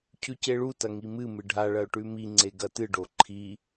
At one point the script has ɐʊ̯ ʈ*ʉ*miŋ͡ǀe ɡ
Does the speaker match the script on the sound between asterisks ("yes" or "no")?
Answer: yes